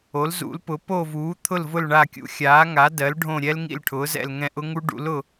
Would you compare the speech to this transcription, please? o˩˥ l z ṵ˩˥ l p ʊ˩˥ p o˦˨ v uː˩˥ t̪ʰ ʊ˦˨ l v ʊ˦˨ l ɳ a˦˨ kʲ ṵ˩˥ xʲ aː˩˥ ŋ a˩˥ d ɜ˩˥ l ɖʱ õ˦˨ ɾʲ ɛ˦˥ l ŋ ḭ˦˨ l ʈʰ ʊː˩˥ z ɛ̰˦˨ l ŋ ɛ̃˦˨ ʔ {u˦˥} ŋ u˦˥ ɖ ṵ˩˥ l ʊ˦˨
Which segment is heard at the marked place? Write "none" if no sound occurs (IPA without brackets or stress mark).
ʊ˦˥